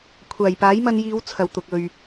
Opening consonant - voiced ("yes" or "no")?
no